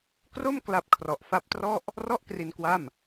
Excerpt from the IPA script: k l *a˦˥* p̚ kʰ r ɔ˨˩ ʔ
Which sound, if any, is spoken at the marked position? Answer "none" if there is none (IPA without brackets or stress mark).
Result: a˦˥